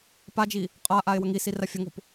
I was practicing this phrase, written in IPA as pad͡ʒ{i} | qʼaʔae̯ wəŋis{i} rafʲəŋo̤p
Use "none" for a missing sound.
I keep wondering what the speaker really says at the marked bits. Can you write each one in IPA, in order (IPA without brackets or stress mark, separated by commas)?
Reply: i, i